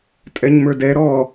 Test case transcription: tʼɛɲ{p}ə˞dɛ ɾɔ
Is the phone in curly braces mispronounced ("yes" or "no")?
yes